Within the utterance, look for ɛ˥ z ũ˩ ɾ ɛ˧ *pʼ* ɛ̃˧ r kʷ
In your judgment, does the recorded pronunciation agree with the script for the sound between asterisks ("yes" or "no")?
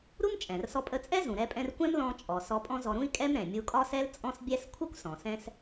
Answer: yes